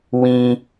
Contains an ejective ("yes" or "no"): no